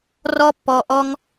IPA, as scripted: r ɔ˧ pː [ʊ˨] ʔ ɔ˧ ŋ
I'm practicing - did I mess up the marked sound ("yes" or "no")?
yes